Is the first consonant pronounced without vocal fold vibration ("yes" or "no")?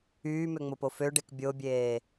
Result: no